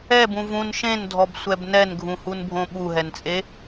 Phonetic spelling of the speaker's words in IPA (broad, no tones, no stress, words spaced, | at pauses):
ɛbũ vũn ʃẽndʱɔbsʷɛb nɛnɡʱũhunbʱõ ɓuɦɛnt͡sʼe